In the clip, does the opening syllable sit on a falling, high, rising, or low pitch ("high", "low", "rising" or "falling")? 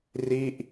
falling